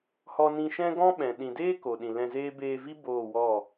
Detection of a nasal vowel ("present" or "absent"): present